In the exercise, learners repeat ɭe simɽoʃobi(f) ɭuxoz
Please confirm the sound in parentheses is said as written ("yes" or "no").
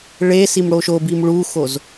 no